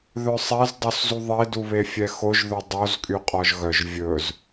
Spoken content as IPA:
ð œ sˤ ɛ z dˤ o s z u ðˤ e d u β e fʲ ɛ x o ʒ ð ɵ dˤ o z kʼ y qʼ ɔ ʒ ɣ œ ʒ vʲ ɵ z

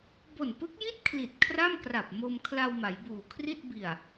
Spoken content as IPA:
b o˨˩ n p ɯ˦˥ k̚ j i˥˩ t̚ kʰ l i˨˩ t̚ kʰ r a˥˩ m k r a˨˩ p̚ m o˧ m kʰ l a˧ w m a˩˦ j b uː˨˩ kʰ r i˥˩ t̚ b i˨˩ a̯

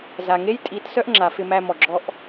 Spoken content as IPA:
z a˨ ŋ e˦ j tʼ i˨˦ t s œ˦ ʔ ŋ͡ǁ a˨ f ɪ˧ m æ˧ m ɔ˨ ɡ͡ǁ ɔ˦ ʔ

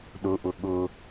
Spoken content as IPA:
ɗ ʊ ʔ ʊ ɠ ʊ

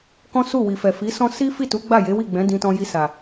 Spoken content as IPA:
k ɔ̃˦ s u˦˨ w i˨ f ɛ˨ f i˨˦ s ɔ̃˦ s i˦ f i˦˨ t u˨˦ ɡ͡b a˦˨ j e˨˦ w i˦˨ ɡ͡b ɛ̃˨˦ d ĩ˧ t ɔ̃˧ j i˧ s a˨

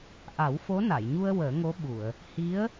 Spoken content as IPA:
ʔ a˨˩˦ w f o˧˥ n a˨˩˨ j ɲ u˧ ə̯ w əː˨˩˦ ŋ o˧˥ ɓ u˨˩˨ ə̯ | h i˧˥ ə̯

